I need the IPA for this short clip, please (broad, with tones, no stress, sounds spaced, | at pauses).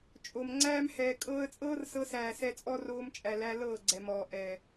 t͡ʃʼ o˨ m ŋ͡ǀ æː˧ m h ɛː˨ kʼ ɤː˧ ə̯ t͡sʼ ɤː˦ r s ɤ˧ s æː˨ s ɛ˧ t͡sʼ ɔ˦ r oː˧ m t͡ʃʼ æ˨ l æ˧ l ɤː˦˨ ɡ͡ǀ ɛ˨ m ɔː˨ ʔ ɛ˨